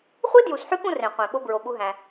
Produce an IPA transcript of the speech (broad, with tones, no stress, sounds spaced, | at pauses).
χʷ i˦ d j u˨ s ħ y˦ k ũ˦ r ẽ˨ qʷ ẽ˨ ɓ o˦ b ɹ o˨ ɓ u˦ ɦ æ̃˦